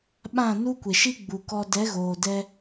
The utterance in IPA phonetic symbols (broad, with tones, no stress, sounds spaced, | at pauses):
ɓ ã˦˨ n u˦ kʷ e˨ ʃ i˦ ɡ͡b u˨ k ɔ˧ d ɛ˨˦ ɣ oː˨ d ɛ˧